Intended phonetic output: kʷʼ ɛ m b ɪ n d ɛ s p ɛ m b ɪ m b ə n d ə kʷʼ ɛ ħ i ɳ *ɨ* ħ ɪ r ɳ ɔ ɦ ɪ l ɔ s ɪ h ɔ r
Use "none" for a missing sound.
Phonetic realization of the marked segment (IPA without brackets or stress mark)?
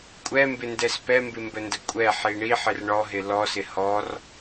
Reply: i